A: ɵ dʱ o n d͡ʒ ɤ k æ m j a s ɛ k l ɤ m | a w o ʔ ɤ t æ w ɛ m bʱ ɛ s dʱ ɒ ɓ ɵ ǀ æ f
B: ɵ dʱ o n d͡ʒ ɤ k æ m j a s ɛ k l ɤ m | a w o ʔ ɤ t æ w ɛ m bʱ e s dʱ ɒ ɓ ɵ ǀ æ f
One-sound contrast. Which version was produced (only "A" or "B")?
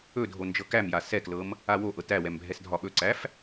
A